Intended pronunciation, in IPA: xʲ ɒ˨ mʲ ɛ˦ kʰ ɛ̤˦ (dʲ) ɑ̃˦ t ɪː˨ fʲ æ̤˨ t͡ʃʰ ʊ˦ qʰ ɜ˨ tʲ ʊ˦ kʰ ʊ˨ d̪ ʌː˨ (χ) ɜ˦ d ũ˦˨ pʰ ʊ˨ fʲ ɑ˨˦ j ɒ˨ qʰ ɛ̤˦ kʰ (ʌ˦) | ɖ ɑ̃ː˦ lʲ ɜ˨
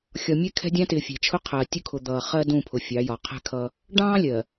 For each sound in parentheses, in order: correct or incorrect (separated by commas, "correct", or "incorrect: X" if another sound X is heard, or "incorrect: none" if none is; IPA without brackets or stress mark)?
correct, correct, correct